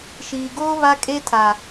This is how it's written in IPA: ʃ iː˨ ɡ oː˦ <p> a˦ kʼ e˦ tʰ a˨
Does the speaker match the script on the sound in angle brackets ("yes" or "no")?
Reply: no